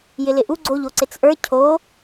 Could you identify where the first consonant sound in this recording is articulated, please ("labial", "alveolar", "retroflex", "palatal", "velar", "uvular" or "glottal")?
palatal